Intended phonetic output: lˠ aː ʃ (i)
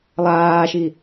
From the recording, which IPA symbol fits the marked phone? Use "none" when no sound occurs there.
i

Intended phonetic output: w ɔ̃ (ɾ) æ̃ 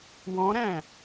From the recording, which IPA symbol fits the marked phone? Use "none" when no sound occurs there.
ɾ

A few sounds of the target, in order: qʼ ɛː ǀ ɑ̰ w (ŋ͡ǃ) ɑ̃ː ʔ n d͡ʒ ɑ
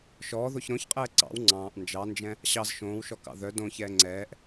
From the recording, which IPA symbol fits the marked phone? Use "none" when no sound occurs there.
ŋ͡ǀ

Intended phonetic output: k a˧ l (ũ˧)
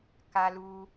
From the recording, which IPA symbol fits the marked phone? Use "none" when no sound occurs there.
u˧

